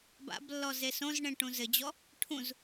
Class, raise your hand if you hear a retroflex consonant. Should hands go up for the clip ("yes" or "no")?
yes